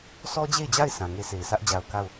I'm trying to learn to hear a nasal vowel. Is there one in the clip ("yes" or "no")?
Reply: yes